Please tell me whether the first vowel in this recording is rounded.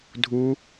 yes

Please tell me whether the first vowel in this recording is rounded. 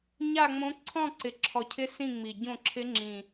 no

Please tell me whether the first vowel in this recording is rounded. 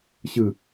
no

